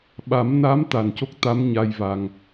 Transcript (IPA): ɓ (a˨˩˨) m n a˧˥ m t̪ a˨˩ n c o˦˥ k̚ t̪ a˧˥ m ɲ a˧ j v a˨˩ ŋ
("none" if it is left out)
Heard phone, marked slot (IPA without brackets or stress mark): a˨˩˦